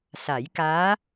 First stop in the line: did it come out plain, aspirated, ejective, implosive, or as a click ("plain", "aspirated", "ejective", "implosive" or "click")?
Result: plain